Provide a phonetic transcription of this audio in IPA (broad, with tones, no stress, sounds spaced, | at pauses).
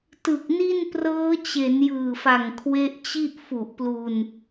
t ɯ˨˩ k̚ n i˥˩ n p r ɤː˦˥ t͡ɕ e˩˦ n j ɯː˨˩ f a˨˩ ŋ kʰ w e˦˥ ʔ t͡ɕ i˥˩ ʔ f u˨˩ ʔ p l u˧ n